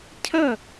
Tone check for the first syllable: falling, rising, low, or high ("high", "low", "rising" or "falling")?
falling